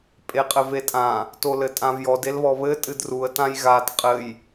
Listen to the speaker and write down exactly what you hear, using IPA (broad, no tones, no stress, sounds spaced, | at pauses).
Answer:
pʼ e qʼ ɘ v e tʼ ã | t o l ɘ tʼ ã v j ɔ d e l β ɔ β ɘ tʼ ɨ d r u ə̯ t ã j ɣ a t qʼ ɘ j